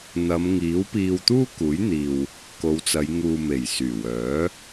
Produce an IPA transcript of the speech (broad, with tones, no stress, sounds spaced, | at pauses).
n̪ ɐ˨˧ m ŋ iː˨˥ w p iː˧ w t̪ uː˥ k uː˨˥ j n̪ iː˨ w | k o˨˧ w t͡s ɐ˨˧ j ŋ uː˨ m e˨˩ j s yː˨˩ w œː˨˥